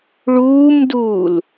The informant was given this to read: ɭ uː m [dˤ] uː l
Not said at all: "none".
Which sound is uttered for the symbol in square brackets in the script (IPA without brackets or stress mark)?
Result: d